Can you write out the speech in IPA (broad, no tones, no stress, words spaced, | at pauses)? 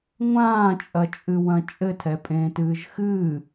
ŋʷãːt͡ʃʼɐt͡ʃʼɨwɐ̃ t͡ʃʼɘtʰɛpʼẽːtɨːʒ xɨː